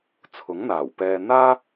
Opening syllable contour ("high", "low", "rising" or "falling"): rising